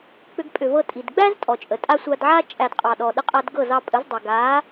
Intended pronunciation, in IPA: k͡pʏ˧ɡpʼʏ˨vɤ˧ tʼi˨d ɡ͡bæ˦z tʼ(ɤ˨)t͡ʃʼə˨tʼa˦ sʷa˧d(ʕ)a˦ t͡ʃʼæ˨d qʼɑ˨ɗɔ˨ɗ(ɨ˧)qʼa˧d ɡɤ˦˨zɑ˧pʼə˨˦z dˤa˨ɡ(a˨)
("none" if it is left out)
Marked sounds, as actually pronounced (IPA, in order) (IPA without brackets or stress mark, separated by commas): ɔ˨, ʕ, ə˧, a˨˦